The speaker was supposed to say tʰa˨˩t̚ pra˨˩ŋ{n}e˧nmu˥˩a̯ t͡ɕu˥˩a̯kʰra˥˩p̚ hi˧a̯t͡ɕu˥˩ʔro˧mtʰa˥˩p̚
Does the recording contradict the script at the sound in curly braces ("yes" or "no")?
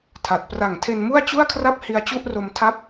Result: yes